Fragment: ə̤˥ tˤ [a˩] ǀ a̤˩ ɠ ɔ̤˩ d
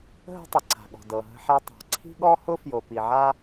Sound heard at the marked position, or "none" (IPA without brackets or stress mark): ə˩